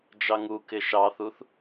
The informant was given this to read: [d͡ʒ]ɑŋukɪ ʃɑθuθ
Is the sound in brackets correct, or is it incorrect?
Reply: correct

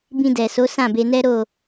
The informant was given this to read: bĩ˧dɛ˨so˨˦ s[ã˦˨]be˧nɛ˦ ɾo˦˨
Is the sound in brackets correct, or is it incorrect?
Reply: correct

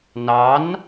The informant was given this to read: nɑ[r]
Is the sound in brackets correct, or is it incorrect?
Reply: incorrect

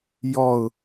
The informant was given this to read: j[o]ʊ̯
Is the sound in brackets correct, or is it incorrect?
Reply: incorrect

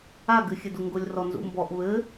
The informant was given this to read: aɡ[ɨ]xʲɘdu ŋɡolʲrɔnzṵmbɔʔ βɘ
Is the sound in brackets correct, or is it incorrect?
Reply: correct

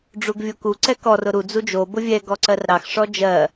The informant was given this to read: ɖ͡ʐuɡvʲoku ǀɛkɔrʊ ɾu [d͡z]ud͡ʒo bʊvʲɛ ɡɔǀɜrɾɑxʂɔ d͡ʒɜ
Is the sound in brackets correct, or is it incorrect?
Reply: correct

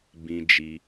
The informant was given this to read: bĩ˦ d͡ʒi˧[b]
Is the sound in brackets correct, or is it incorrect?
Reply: incorrect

